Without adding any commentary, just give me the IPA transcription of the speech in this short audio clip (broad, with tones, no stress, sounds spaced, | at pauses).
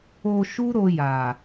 o˧ ʃ u˦ ɾ o˧ j a˨